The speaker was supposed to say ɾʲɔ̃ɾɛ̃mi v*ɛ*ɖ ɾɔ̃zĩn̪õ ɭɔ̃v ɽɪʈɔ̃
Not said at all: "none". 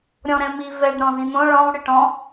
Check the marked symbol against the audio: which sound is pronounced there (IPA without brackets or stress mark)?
ɛ